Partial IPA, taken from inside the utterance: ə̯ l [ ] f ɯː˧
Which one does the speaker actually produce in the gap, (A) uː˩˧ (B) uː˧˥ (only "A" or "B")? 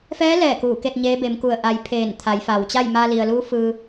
B